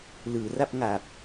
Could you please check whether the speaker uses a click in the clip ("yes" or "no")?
no